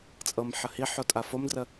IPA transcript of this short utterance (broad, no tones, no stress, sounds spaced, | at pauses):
t͡sʼ ɤ m ħ ə h i ħ o tʼ a f o m d r ə